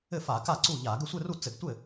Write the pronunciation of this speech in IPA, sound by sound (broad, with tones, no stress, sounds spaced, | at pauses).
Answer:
ɘ˥˩ f a˧˩˧ k a˥˩ ǀ u˥˩ ʎ a˧˩˧ ɡ ɘ˥˩ sʷ ɘ˥˧ r u˥˩ t͡s ɘ˧˩˧ ɡ tʷ ɘ˥˩